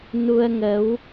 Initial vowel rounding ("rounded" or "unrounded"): rounded